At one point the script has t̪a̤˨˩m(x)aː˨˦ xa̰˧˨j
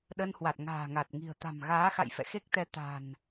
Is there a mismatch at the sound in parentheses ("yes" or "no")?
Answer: yes